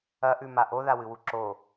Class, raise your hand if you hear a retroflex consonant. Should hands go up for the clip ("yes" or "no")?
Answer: no